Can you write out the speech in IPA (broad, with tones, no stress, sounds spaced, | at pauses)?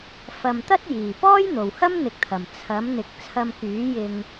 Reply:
f ɐ˨ m t̪ ɐ˥ t̚ j iː˨˩ p ɔː˥ j n̪ o˨˩ w h ɐ˥ m n̪ ɪ˨ k̚ t̪ʰ ɐ˨˩ m t͡sʰ ɐ˨˥ m n̪ ɪ˨˥ k̚ t͡sʰ ɐ˧ m k yː˨˥ j ɪ˧ ŋ